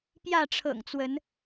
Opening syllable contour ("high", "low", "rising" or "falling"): falling